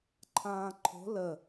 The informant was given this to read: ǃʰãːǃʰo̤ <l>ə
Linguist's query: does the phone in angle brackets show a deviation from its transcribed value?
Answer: no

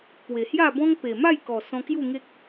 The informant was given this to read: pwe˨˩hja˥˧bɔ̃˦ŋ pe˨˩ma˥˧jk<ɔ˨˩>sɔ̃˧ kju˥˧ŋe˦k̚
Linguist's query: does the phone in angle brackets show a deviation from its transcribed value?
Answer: no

